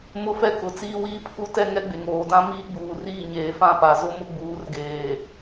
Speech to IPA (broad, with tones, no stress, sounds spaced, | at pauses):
m ʊ˦ f ɛ˦ k ʊ˨ t͡s iː˦ w iː˦ pʰ u˦ t ɛ˦ ŋ ɛ˦ ɡ͡b e˨ ŋ oː˨ d ã˦ m iː˦ ɡ͡b uː˨ r iː˦˨ ɲ eː˨ f ã˦˨ p a˨ z ʊ˦ m ʊ˦ ɡ͡b uː˨˦ r ɡ eː˨